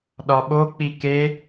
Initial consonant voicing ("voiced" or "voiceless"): voiced